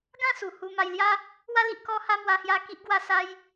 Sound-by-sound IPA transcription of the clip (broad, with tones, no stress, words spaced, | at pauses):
ɡã˥˧su˨˩hu˧ ma˧jlja˦ | wa˧li˨ʔ kɔ˧ha˧ mwa˦hja˦ ki˦ʔɡwa˥˧sa˦j